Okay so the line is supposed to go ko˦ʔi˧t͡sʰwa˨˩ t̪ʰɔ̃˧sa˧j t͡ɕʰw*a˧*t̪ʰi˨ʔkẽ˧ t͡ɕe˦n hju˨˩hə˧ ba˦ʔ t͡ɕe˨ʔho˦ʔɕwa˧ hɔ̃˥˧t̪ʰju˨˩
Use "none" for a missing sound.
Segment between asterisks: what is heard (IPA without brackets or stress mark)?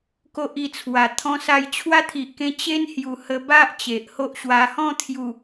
a˦